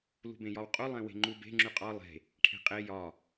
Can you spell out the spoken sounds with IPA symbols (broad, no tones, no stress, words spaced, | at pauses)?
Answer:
lṳbẽjɒwqʼu lˠẽwe̤ŋ͡ǃube̤ ŋ͡ǁyqʼɒ lˠe̤ | ʈʰe̤qʼe jɒ